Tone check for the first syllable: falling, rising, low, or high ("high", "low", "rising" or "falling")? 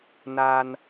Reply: high